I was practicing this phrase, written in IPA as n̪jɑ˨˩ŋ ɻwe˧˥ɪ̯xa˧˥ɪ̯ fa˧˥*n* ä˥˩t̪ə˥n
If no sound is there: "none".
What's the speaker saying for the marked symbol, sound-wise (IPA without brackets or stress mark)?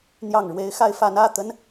n